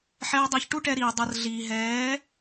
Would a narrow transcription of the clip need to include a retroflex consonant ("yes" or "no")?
yes